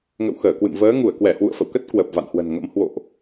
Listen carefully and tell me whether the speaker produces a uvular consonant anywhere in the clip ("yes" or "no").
no